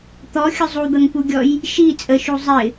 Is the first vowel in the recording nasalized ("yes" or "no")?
no